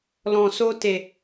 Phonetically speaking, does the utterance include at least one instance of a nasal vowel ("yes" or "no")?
yes